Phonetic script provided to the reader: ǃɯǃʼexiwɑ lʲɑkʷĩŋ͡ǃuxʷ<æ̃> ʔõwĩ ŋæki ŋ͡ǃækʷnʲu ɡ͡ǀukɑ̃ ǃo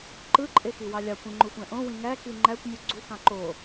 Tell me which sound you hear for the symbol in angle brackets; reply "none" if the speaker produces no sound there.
æ̃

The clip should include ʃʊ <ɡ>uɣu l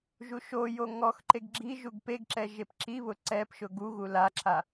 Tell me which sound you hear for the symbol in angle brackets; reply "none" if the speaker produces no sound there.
ɡ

